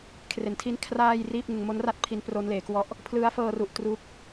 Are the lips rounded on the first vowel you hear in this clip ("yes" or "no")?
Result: no